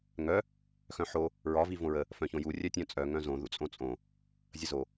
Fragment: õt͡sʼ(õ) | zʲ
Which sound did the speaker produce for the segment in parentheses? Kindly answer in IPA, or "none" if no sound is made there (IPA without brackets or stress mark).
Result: õ